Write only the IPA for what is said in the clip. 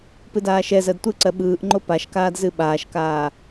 p ɨ d aː ʃ ɛ z ɜ d tʷ ɯ ǀ ɜ ɓ ɯː ʔ ŋ͡ǃ o p a ʃ k aː d z ɨ ɓ aː ʃ k aː

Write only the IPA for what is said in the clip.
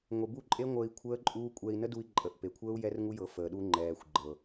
ŋʷ e˨ b u˦˨ ǃʼ e˦ ŋʷ əː˧ i̯ kʷʰ əː˦ ǃʼ uː˦ kʷʼ ɛ˧ i̯ n ə˦ d u˧ i̯ ǃʼ ə˨ ʔ p e˨ kʷʰ əː˦ u̯ j ɛ˦ r ŋ u˦ j ɤ˨˦ f əː˨ ɗ u˧ ŋ͡ǃ ɛː˨ xʷ ɡ͡ǃ ɤ˨

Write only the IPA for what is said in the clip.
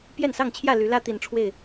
p j ɛ˥˨ n s ɑ˥˨ ŋ t͡ɕʰ j ä˥˨ l y˨˦ l ä˦ t̪ i˨˦ n ʈ͡ʂʰ w e˥˨ ɪ̯

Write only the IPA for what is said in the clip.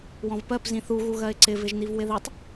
w ɔ̃ v p ɜ p z ĩ θ u ɣ u ɣ ɜ ɪ̯ ǀ ɪ v ɪ ʒ n̪ i v w ɪ ð i tˤ

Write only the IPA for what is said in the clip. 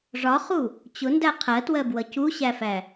ʐ ɒ χ u | t͡ɕ ʊ n d æ qʰ ɜ t w ɜ b w ʌ c u ɕ æ f æ

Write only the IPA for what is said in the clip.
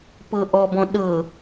p ɤ ʔ ɔ b ɔ̃ ɗ ɤ

